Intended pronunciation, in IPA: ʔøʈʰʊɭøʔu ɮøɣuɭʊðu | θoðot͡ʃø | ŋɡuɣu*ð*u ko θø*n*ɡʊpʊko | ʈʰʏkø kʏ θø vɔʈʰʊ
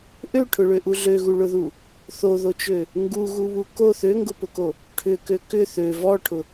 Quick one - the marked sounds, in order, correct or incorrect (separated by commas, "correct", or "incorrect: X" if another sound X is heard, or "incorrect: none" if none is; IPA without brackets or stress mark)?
incorrect: β, incorrect: ŋ